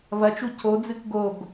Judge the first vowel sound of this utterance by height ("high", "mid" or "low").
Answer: low